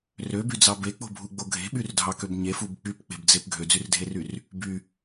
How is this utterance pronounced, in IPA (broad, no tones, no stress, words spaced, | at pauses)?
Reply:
røbyd͡zɑ bek͡po̤bʱuɡ͡bo ɡʱe̤ɓyrdʱɑkøb ɲefub k͡pypk͡pe̤bd͡zep ɡʱød͡zyrdʱeryr | by